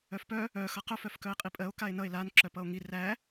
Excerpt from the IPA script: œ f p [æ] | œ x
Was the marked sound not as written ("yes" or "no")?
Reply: yes